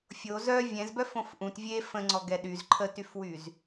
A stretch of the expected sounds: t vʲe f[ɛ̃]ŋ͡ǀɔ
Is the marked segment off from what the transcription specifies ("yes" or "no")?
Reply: yes